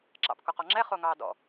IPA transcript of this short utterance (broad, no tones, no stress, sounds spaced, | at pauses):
ǁ ɑ̰ p k o q ɔ ŋ͡ǁ ɛ χ o ŋ ɑː d ɔ̰